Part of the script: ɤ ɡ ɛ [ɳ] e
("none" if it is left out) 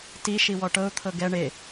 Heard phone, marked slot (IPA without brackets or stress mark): ɳ